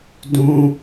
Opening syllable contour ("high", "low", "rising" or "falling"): high